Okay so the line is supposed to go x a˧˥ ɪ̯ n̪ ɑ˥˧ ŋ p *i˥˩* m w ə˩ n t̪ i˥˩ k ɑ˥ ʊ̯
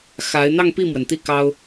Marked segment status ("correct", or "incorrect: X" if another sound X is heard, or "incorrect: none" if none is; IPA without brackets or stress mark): correct